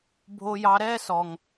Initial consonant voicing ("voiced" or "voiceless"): voiced